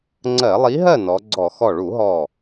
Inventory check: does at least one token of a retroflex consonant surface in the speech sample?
yes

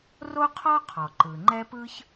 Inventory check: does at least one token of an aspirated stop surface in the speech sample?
yes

